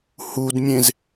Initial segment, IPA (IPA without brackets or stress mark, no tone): h